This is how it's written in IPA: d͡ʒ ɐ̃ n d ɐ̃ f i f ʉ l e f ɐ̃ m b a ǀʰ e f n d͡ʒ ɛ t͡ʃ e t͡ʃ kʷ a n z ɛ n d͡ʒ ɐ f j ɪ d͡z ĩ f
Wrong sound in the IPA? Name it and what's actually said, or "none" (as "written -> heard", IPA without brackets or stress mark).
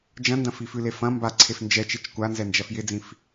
none